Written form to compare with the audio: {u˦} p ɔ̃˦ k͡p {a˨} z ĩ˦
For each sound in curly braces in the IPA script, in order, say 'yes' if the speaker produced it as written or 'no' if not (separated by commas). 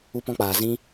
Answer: yes, no